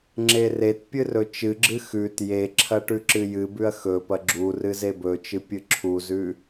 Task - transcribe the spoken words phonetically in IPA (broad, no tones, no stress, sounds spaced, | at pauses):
ŋ͡ǁ e r e t pʲ ɨ r ɵ t͡ʃ ɨ ɡ͡ǁ ɨ x ʉ t j e ǁʰ ɐ ʈ ʉ ǁ ɨ j ɨ b ʉ ɐ̯ x ɵ p ɐ ɡ͡ǁ u r ɨ z e b ɵ t͡ʃ ɨ pʲ ɨ ǁʰ u z ʉ